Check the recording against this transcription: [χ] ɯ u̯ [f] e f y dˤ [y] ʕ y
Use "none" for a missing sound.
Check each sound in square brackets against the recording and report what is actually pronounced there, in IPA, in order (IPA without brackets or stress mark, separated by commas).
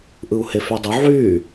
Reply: ʔ, h, u